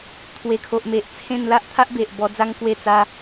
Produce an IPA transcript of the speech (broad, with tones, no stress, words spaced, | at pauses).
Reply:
t̪ʰwe˨˩kʰo˨ʔme˨ʔt͡sʰẽ˥˧n la˦ʔt̪ʰa˦ʔbe˨ʔ bɔ˧d͡za˦ŋ kwe˥˧t͡sa˦